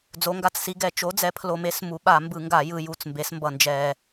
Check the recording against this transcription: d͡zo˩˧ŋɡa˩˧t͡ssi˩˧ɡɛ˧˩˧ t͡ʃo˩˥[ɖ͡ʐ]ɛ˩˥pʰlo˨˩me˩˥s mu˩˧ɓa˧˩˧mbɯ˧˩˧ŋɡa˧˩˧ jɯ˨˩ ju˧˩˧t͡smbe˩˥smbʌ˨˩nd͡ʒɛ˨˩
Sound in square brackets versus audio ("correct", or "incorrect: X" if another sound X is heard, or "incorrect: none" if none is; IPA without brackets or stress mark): incorrect: d͡z